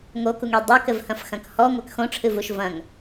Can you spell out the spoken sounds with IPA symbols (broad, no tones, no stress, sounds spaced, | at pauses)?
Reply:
ŋ o k u ŋ e dˤ e k ɘ v h ɐ̃ f x ɐ̃ k h ɔ ŋʷ a k x õ ʈ͡ʂʰ ɨ v u ʃ v ɐ̃ ŋ